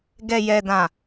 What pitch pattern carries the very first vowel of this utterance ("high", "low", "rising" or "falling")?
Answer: low